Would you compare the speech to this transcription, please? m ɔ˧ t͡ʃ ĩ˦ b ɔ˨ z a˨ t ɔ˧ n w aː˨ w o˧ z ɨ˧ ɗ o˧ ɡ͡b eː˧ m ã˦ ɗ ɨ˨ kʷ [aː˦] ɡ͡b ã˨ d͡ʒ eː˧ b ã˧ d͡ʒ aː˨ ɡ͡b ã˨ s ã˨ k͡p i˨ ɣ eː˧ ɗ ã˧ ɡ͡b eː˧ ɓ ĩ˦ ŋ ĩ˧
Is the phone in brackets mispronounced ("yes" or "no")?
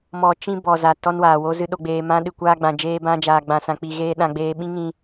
yes